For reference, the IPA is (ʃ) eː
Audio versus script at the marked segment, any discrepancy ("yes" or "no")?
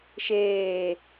no